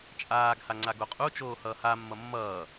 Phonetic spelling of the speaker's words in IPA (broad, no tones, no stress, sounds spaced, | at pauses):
t͡ʃʼ aː ɡ h a ŋ͡ǀ a ɡ o qʼ u t͡ʃ oː h ʌː h a mː ʌ mː ʌː